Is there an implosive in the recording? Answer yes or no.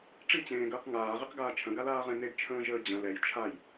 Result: no